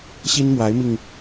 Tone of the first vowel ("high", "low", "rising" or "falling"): high